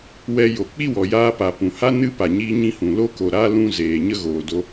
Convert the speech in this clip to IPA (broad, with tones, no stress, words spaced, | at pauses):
wɛ˧jo˨k͡pi˦wɔ˨ jaː˧pa˨ pũ˨ha˦ nɨ˦pa˨ ɲiː˦ɲĩ˦hũ˨ lo˦ko˨ ɾa˦lũ˧ zeː˨ɲə˦ɣoː˨do˦